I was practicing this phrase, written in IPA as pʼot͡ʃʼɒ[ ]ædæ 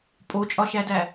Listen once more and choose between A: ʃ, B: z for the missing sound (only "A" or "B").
A